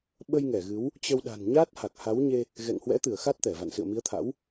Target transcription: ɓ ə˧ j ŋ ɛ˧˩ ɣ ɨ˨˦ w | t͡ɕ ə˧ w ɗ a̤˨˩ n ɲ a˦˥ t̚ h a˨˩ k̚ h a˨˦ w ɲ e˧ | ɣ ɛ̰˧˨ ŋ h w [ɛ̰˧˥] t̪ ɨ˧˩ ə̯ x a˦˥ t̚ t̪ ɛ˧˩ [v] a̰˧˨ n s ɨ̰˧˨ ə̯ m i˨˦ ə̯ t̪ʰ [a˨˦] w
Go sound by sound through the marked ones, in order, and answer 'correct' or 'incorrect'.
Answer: correct, correct, incorrect

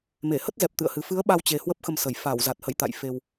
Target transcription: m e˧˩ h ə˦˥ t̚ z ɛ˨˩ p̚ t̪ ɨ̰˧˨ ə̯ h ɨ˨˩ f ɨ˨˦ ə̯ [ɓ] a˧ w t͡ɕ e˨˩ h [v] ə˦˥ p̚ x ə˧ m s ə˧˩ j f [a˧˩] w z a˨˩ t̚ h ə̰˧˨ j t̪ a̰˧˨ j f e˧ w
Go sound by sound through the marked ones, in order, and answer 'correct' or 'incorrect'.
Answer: correct, incorrect, correct

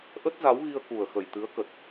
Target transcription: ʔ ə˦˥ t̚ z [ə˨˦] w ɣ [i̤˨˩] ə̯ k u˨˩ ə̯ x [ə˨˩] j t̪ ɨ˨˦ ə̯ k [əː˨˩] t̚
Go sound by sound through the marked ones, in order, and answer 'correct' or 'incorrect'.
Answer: incorrect, incorrect, correct, incorrect

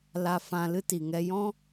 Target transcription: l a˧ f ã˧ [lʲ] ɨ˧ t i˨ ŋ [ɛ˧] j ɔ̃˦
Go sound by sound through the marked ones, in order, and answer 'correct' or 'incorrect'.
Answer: incorrect, correct

